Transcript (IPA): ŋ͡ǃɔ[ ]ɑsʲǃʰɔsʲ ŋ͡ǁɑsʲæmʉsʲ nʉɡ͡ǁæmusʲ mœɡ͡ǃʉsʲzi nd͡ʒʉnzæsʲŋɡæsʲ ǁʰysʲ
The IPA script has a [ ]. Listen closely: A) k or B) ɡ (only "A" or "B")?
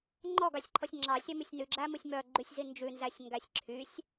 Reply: B